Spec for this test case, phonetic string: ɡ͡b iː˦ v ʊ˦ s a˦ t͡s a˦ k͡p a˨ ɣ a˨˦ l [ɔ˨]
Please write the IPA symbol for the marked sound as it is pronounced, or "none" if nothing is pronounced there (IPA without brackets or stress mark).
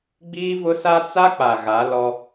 ɔ˦